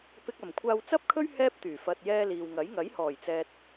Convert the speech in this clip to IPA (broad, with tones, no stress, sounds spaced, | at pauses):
p ɪ˧ k̚ ɐ˨˩ m kʷʰ aː˧ w t͡s ɐ˥ p̚ kʰ ɵ˥ ɥ h ɛː˥ p̚ t̪ yː˨˩ f ɐ˨ t̚ j ɛː˧ l iː˨ w ŋ ɐ˨˥ j ŋ ɐ˨˥ j h ɔː˨˩ j t͡s ɛː˨ t̚